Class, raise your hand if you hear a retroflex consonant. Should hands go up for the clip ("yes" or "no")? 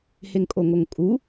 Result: no